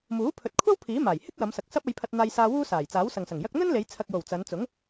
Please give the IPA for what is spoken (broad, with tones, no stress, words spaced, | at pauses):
muː˨˥pʰɵ˨t̚kʷʰɐ˥w pʰiː˨˥ maː˨˩j hɪ˥k̚wɐ˨˧msɐ˨k̚ sɐ˥p̚ɐ˧jpʰɐ˧t̚n̪aː˧j saː˧ wuː˥ saː˨˩j t͡saː˨˥wsɐ˨ŋsɐ˨˩ŋjɐ˥k̚ n̪ɵ˥nle˨˧j t͡sʰɐ˨k̚jo˨˩w t͡sɐ˨˧nt͡sʊ˨˥ŋ